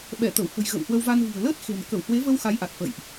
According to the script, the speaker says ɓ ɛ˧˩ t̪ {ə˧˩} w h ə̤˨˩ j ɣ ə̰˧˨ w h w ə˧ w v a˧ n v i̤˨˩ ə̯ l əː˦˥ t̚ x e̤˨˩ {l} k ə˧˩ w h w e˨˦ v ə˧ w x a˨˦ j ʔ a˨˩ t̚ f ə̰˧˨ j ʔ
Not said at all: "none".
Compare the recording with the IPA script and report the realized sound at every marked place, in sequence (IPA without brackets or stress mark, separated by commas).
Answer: ə˧˩, n